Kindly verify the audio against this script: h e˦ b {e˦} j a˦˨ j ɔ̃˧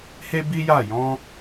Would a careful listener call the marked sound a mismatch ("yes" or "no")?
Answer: yes